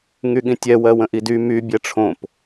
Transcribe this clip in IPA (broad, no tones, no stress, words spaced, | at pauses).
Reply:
ŋyɠĩtʲɛ wɜwə̃ʔidy my bʲɛʈ͡ʂʰõp